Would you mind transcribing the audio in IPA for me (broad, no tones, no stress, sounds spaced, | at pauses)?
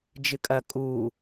d͡ʒ ɨ kʼ ɐ kʼ uː